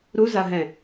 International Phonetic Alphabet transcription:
ɾu zaɦɛ̃

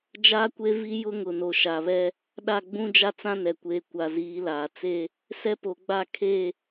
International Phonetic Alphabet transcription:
d͡ʒaː˦kʷe˦vi˦ jʊ˦ŋʊ˨no˨ ʃa˨βɛ˦ | ɗa˦˨ɡ͡bũ˦d͡ʒa˦ t͡sã˦ nɛ˨ kʷeː˨ kʷa˨ziː˨˦laː˨ t͡se˦ | sɛ˦po˨ɡ͡ba˦˨ kʰe˦˨

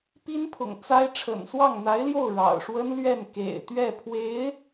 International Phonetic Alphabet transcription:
pi˥npʰʊ̰˨˩ŋ t͡sa˥ɪ̯ ʈ͡ʂʰə̰˨˩nswɑ˥˩ŋn̪a˧˥ɪ̯ljo˥˩ʊ̯ ɻɑ̰˨˩ʊ̯ʂwə˥nlɥɛ˥˩n kḛ˨˩ɪ̯t̪ɥɛ˥˩pʰwe˧˥ɪ̯

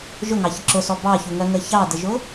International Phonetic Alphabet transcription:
ʒʊŋɑçə ǁʊsɔ bɑçuŋɜŋə çɑdəʒʊ

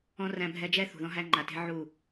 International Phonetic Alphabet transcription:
ɔ̃˦ ræ̃˦bʱɛ˦ d͡ʒɛ˦ θṳ˨ðɔ̃˦ ɦæ˦ŋ͡ǃa˨te̤˦ ʕu˦˨

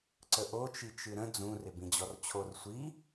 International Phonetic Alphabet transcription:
ǀəʔot͡ʃi t͡ʃɨɾə̃ d͡zũrɪ bĩd͡ʑɔrt͡ɕʰor sʷi

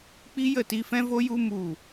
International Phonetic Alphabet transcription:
k͡pi˦jə˦˨ti˧fɛ̃˦ vo˦ju˦ mu˦˨

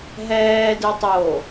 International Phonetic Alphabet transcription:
ɦɛːdɯ tˤo

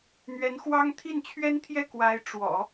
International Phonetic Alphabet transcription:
n̪ɥɛ˧˥nxwɑ˥ŋ t̪ʰi˥˩nt͡ɕʰɥɛ˥nt̪ʰjɛ˥˩ kwa˧˥ɪ̯ʈ͡ʂwɔ̰˨˩˦

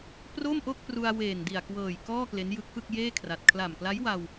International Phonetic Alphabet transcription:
pro˥˩mʔo˥˩k̚pru˧a̯ weː˨˩ndi˨˩a̯kwɤː˨˩j kɔː˥˩ kle˦˥njɯ˦˥k̚fɯ˥˩k̚jeː˥˩ kʰra˨˩t̚ kʰla˨˩mkla˦˥jwa˧w

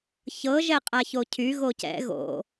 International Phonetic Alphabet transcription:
çɤ ʒɛqʼaçocʰy ɣocɛ̰ ɣo̰

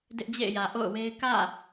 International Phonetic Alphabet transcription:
dɪ˦ʔd͡ʑḛ˦˨ɪ̯jä˨ ʔo̰˦˨ʊ̯we˦ɪ̯ kä̰˦˨

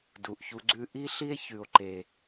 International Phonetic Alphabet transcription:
du˨ʔçu˦ ɡ͡ǀʉ˦ ʔi˦ɬi˦e̯ çʉ˨o̯ǃe˨

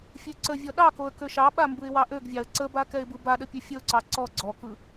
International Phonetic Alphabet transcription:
fʲøǀəvʲɔ ɗɑkoə̯ køʃɑɓa mbɯɪ̯wɑʔøɡvʲɑə̯ ǀəba kɛɪ̯bɯbaɗə pʲøfʲəʊ̯ǀɑ ǀɔ ɡ͡ǀɔkɯ

